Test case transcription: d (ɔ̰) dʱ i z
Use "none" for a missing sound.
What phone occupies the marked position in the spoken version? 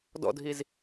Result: ɔ̰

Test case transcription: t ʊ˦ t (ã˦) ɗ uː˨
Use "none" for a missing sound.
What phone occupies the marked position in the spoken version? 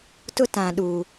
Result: ã˨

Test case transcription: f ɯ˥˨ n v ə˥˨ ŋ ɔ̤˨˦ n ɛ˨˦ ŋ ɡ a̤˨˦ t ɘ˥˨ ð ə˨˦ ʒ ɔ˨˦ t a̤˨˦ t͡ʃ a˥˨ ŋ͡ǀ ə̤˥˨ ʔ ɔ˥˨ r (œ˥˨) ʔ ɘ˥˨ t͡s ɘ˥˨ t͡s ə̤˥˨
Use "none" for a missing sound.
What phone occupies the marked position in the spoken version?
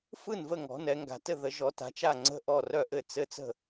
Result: œ˥˨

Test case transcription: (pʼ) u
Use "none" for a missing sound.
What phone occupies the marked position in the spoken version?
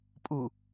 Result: pʼ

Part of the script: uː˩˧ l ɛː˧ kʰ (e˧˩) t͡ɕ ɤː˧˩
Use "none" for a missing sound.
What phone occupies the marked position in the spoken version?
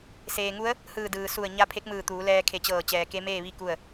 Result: e˧˩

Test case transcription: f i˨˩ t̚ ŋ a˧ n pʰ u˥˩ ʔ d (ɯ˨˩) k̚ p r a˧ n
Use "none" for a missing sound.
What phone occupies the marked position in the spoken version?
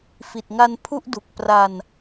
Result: u˨˩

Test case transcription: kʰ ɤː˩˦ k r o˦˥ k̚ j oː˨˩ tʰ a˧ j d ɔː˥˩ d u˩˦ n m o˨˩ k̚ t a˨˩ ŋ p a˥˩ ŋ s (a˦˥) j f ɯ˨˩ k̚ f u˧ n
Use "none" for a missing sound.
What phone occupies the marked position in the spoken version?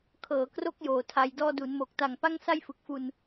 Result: a˥˩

